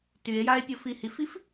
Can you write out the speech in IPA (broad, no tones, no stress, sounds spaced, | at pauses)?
t y e̯ j a e̯ pʲ o f i h i f i f